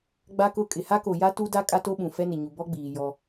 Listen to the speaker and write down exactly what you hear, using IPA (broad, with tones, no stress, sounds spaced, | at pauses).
ɡ͡b a˦ k ʊ˦˨ kʼ ɪ˨ h a˦ k o˨ j a˦ t u˦ d a˦ kʼ a˦ t o˦ ɓ ũ˨ f ɛ˦ n ɪ˨ ɲ u˨ b ɔ˦ ɡ͡b iː˨ j ɔ˦